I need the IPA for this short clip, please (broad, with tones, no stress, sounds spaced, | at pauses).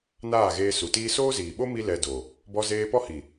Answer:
n aː˦˨ ɣ eː˧ s u˨ t iː˦ s oː˦ z iː˨ ɓ o˦ m i˦ l ɛ˧ d o˨ | b ɔ˧ z eː˧ p ɔ˦ h i˨